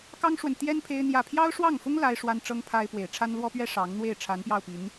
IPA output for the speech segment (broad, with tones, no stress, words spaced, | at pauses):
kɑ˥ŋʂwə˨nt̪jɛ˥n pʰe˥ɪ̯n̪jä˥˩ pʰjɑ˥ʊ̯ʂwɑ˥˩ŋfʊ˥ŋ la˥ɪ̯ʂwa˥nʈ͡ʂɤ˥ŋ pʰa˥ɪ̯ pwe˨˩ɪ̯ʈ͡ʂʰa˥nlwɔ˥pɥɛ˥ ʂɑ˧˥ŋn̪we˥˩ɪ̯ ʈ͡ʂʰa˧˥npjɑ˥˩ʊ̯pi˧˥n